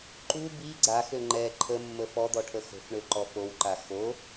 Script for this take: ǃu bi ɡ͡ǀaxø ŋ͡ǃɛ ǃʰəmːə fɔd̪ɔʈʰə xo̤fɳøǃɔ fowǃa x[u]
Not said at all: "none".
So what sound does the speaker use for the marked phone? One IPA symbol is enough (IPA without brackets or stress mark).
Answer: o